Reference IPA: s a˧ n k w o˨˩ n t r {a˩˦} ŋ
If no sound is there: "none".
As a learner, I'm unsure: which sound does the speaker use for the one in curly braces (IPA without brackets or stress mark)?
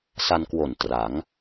a˩˦